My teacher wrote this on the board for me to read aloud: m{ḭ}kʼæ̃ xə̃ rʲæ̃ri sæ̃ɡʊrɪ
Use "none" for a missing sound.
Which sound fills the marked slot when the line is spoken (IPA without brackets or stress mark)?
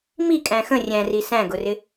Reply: i